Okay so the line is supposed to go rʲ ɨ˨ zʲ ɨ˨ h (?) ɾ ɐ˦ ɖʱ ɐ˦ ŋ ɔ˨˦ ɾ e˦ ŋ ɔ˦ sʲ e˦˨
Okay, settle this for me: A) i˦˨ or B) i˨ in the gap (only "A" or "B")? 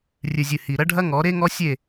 B